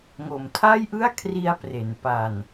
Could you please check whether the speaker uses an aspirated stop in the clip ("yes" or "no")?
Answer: yes